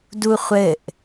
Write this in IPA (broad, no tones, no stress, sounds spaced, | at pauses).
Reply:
d u χʷ ɘ ʔ